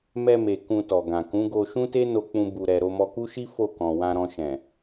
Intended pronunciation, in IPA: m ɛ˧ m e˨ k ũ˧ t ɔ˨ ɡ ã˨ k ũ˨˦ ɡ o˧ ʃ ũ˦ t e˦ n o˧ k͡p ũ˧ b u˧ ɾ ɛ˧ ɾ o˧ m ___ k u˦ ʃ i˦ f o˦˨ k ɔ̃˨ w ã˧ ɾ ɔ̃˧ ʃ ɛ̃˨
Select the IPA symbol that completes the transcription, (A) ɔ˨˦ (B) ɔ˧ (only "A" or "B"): B